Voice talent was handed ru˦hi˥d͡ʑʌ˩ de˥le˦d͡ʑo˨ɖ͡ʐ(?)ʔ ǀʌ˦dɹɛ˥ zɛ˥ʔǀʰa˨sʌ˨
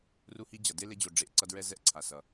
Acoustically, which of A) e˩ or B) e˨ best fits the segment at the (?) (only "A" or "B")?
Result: B